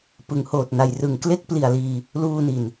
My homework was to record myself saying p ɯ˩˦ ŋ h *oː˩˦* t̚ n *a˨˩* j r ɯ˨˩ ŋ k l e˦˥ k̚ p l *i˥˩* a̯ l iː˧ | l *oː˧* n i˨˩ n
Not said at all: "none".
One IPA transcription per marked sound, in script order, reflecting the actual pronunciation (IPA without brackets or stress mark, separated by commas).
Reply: oː˨˩, a˨˩, i˨˩, uː˧